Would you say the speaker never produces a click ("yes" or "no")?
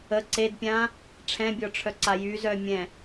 no